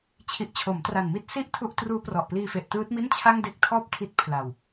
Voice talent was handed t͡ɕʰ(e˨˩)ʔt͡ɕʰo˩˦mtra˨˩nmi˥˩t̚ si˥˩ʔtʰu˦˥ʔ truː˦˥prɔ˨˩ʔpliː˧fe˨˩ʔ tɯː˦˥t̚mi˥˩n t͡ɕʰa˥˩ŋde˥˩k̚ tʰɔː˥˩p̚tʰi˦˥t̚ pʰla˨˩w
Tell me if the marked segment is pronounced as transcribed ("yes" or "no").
no